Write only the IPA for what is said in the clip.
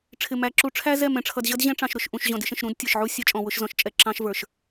ʈ͡ʂʰ ɪ˨ m æ˨ ǁ u˨ ʈ͡ʂʰ æ˦ z ɛ˦˨ m ɛ̃˨ ʈ͡ʂʰ ʌ˨ d ʑ ʌ˦ d ʑ ɛ̃˦ ʈ͡ʂ ɑ̃˨ ʃ ɾ ʊ˨ ʃ ʔ ũ˨ ʃ ʑ ɔ̃˨ d ɪ˦ ʃ ə̃˨ ʃ ɾ ũ˦ d tʲ ə˞˨ ʃ ʕ u˦ sʲ ɛ˦ t͡ʃʼ ɔ̃˨ w ʊ˦ ʃ z ɔ̃˨ ʃ t͡ʃʼ ɛ˨ ǁ ɑ̃˦ ʃ v ə˞˨ ʃ

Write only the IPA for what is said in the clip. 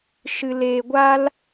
ʃ ɨ˧ l eː˧ ɡʷ a˦ l

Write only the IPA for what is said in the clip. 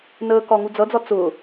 n əː k ɒ ŋ u d͡z ʌ d͡z ɒ t͡s ʊː

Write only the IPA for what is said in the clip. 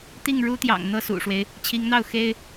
t̪ i˥˩ ŋ ɻ u˥ t̪ j ɑ̰˨˩ ŋ n̪ ɤ˥˩ s ṵ˨˩ ʂ w e˦ ɪ̯ | t͡ɕʰ i˧˥ ŋ n̪ ɑ˥˩ ʊ̯ x e˥ ɪ̯

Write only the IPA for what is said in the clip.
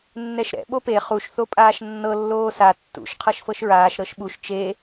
nː ɛ ʃ ɾ ɛ̰ ɓ o p e χ u ʃ θ o pʼ aː ʃ nː ɤ lː oː s a tː ṵ ʃ qʰ ɤ ʃ f ɤ ʃ ɹ aː ʃ ɾ ɤ ʃ ɓ u ʃ t͡ʃ e

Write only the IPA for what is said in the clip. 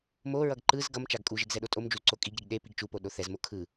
m o ɹ ʌ ɡ ǃ ɯ z ɡ ʌ m t͡ʃ a ɡ kʼ u ʒ e ɡ z ɛ ɗ o tʼ o m d͡ʒ u z ǀ o kʼ i ɡ ɾ i ɡ ɗ e p i ɡ t͡ʃ u p o ɗ o θ ɛ z m o kʰ ɯ

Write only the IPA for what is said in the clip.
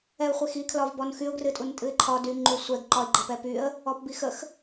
ɛ ʊ̯ χʷ e x i kʰ l ɒ v b ɔ n x y ʊ̯ ɡ r ɨ tʼ u n tʼ ɨ ɪ̯ ǃʰ ɒ d y ŋ͡ǃ u sʷ ɛ ɡ ǃ ɒ ɪ̯ ɡ͡ǃ ə p ɛ p y ə̯ | ɔ p b i x ə x

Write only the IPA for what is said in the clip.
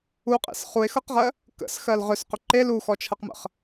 u qʼ ḛ s χ u e̯ x ɤ q ʁ ɜ | k ə̰ s x ɜ l ʁ ʏ s q ʏ ǃ e l u x ɔ t͡ʃʰ ɤ q m ə̰ χ

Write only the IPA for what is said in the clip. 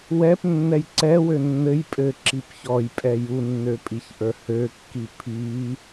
w ɛ p nː ɛ j ǀ ɛ w ø nː ɘ j pʼ ɘ ǁ i p ç ɔ j pʼ ɛ j u nː ø pʼ i ç ʔ ə˞ h ø kː i pʰ i

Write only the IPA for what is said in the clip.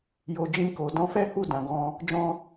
j o˨ d͡ʒ ĩ˧ k o˨ d ɔ̃˨˦ f ɛ˦ h u˦˨ d ã˨ ɡ ɔ̃˧ | d͡ʒ ɔ̃˧

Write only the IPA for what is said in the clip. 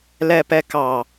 l ɛ p ɛ k ɑ

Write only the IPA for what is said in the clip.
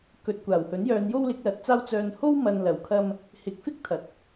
k ɵ˨ t̚ kʷ aː˨˩ w h ɵ˨˥ n j œː˨˧ n j o˥ w l ɪ˨˥ k̚ l ɐ˨ t̚ t͡s aː˥ w t͡s œː˧ n h o˥ w m ɐ˨ n l ɐ˨˩ w kʰ ɐ˧ m | h ɪ˨˥ k̚ f ɪ˥ k̚ t̪ʰ ɐ˨ t̚

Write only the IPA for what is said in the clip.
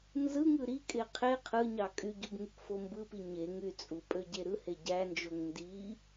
n z ɯ ŋ ɯ ɾ i kʼ e qʰ e qʰ ɯ ɲ ɑ kʼ y ɟ u b ŋ y k f o m b ɯ p i ɲ e ŋ y t͡sʼ u pʼ ø ɟ e ɾ ɯ h e ɟ æ n d͡ʒ o ŋ n d i

